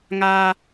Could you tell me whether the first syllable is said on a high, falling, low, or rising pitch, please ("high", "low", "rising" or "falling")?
high